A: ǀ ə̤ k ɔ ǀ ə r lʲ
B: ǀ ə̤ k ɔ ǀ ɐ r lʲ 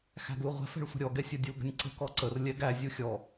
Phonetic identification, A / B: A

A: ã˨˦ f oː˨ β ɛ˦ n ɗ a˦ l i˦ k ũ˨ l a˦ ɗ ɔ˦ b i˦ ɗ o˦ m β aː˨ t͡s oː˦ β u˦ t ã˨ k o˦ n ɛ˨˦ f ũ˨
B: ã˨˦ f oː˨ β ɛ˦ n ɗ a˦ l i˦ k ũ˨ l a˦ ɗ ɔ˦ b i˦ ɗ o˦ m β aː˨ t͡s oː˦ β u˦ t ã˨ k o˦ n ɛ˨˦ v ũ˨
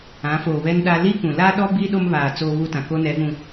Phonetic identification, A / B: B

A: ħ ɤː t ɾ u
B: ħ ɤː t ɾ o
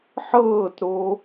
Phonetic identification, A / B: B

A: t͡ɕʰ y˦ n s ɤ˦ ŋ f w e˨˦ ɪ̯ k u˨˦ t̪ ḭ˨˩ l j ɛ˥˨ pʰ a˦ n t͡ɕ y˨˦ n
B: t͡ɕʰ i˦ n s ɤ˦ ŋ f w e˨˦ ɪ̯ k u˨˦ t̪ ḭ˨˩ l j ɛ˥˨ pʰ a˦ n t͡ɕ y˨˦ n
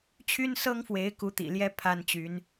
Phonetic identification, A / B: A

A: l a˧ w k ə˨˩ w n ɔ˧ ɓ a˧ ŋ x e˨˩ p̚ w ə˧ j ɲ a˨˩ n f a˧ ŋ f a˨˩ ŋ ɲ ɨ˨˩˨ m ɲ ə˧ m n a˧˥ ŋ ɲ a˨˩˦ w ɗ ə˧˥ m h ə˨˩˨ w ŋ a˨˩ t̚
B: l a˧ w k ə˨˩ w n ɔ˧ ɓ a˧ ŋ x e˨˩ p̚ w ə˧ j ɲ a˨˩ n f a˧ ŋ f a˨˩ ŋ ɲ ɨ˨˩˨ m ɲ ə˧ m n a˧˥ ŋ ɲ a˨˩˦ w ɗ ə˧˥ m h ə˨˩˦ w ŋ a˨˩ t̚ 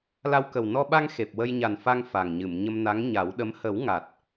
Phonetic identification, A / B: B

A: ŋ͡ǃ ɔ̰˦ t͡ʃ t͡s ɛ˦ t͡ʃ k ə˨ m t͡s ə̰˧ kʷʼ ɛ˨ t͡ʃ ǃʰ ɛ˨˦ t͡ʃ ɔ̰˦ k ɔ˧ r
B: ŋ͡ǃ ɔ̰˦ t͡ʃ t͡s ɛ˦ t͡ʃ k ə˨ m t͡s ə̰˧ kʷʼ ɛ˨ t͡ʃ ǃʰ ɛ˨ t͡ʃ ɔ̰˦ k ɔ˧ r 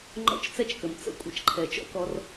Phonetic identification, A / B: B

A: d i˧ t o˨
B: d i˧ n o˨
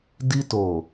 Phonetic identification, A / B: A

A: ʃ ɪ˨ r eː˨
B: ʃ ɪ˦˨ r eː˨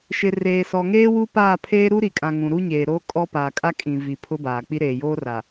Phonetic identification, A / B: A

